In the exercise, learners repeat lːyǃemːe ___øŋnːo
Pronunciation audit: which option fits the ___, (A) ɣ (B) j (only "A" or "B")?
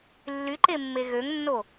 A